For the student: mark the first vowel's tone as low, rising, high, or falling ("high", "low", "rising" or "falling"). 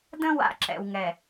high